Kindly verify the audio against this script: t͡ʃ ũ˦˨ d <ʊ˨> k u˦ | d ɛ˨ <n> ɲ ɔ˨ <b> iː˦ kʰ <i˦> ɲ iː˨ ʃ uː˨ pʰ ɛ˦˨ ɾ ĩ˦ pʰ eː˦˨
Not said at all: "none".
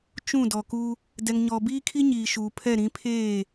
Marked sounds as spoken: ɔ˨, ŋ, b, i˦

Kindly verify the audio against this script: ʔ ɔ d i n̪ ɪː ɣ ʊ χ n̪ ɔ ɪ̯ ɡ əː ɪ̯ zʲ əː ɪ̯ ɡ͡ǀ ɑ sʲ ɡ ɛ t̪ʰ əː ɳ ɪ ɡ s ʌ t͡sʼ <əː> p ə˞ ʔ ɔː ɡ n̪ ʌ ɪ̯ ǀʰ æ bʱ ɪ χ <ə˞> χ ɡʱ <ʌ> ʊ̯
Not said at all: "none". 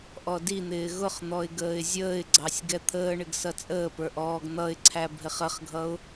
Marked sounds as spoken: əː, ə, ʌ

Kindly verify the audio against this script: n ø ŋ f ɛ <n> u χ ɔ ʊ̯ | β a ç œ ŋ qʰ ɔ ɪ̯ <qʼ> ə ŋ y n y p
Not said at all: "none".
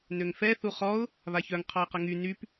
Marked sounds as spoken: θ, q

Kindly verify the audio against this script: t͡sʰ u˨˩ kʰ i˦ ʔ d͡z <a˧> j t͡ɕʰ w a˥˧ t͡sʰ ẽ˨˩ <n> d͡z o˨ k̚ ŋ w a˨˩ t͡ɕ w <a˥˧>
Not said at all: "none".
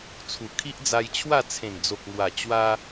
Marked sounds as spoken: a˧, n, a˧

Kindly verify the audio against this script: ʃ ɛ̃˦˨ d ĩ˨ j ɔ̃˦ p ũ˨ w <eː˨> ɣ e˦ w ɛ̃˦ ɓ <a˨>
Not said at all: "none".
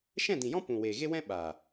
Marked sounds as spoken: eː˨, a˨

